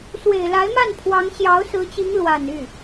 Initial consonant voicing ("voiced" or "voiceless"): voiceless